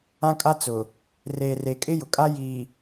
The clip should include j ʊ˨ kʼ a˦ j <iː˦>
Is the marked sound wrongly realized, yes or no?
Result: yes